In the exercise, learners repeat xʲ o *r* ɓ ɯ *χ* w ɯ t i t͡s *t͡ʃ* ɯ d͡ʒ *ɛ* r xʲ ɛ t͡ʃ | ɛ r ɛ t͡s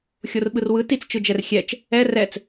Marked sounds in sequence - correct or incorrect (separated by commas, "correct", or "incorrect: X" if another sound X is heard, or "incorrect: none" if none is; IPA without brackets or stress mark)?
correct, incorrect: r, correct, correct